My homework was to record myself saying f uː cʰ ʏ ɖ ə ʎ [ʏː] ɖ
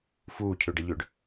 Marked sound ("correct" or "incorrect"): correct